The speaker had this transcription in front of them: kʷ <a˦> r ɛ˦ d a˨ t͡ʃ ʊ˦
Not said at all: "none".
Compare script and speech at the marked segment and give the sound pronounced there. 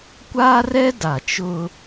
a˦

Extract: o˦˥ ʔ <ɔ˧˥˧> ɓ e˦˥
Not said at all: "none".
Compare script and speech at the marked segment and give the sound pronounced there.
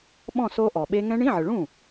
ɔ˨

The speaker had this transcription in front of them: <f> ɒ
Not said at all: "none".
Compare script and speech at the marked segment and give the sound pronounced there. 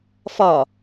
f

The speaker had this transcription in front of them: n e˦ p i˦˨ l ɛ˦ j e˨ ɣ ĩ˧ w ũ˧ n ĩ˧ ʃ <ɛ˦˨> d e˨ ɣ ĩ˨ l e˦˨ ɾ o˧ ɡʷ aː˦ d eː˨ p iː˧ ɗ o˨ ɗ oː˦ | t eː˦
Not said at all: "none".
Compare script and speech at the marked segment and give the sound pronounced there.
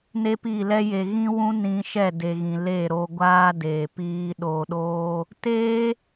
ɛ˦˨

